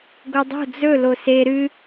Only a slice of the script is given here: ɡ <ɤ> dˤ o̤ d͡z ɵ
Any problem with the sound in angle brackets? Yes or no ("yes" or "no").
yes